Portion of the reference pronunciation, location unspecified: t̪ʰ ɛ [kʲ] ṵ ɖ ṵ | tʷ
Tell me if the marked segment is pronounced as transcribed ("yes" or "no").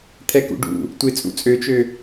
no